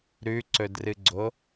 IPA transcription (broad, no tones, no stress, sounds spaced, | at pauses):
ɾ ʉ ǀ ɵ d r ɨ ɡ͡ǀ o